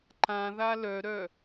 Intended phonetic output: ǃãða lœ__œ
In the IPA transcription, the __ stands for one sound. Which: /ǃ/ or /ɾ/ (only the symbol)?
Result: ɾ